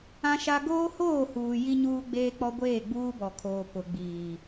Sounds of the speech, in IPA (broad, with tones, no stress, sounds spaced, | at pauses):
ã˦ ʃ a˦ ɡ oː˦ h oː˦˨ h uː˨ j i˦ ɲ uː˦ ɡ͡b eː˦ k͡p ɔ˦ ɡʷ eː˦˨ ɡ͡b uː˦ b ɔ˨ kʰ oː˨ p ʊ˨ ɡ͡b iː˨